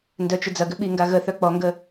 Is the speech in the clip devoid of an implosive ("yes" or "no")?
no